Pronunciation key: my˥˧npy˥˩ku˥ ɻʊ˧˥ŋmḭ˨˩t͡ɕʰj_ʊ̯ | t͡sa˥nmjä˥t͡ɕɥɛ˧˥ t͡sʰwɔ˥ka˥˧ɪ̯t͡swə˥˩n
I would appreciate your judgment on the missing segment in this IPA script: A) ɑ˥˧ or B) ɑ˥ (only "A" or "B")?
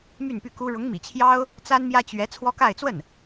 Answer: B